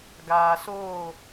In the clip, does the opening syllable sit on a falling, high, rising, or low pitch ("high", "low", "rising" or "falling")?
low